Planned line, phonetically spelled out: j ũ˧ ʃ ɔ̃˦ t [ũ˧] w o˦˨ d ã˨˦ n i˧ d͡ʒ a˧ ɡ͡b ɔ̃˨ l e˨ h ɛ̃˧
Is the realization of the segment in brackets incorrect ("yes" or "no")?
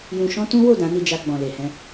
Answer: yes